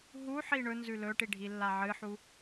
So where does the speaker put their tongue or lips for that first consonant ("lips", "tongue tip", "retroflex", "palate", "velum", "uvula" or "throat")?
throat